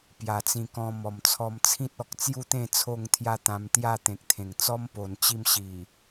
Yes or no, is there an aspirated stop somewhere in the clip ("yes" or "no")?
yes